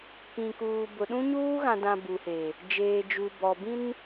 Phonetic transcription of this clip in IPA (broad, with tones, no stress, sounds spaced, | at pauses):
k ĩ˨ k uː˨ b ʊ˨ ɗ ũ˦ ɲ uː˦ ɣ ã˨ d ã˨ b u˨ h e˨ | d͡ʒ eː˨ d͡ʒ u˨ b ɔ˨ b ĩ˦ n